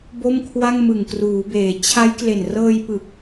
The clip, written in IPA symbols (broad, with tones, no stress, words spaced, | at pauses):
bo˥˩mkʰwa˥˩ŋ mɯ˨˩ŋkruː˩˦beː˩˦ t͡ɕʰa˦˥j kle˨˩nrɤː˧jpɯ˨˩k̚